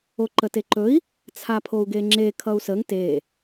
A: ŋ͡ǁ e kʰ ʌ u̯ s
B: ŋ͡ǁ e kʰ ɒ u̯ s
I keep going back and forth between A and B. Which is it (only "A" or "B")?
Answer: A